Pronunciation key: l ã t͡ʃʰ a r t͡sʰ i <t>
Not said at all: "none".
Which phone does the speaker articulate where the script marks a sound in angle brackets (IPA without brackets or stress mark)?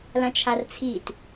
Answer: t